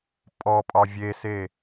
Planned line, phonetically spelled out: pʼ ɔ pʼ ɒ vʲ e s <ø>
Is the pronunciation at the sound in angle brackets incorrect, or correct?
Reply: incorrect